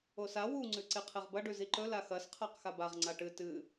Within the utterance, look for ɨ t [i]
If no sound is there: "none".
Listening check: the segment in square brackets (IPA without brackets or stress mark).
ɨ